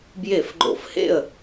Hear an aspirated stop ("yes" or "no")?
no